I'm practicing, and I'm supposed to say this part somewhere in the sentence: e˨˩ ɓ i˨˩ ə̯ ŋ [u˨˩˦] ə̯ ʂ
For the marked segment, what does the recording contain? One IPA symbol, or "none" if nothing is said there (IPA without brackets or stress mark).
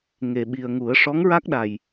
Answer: u˨˩˦